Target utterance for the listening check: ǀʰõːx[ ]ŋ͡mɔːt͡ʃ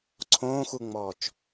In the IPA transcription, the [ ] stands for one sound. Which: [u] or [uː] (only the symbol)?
u